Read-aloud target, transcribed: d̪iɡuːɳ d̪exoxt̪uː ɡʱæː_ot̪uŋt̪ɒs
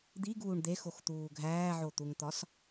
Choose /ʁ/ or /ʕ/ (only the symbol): ʕ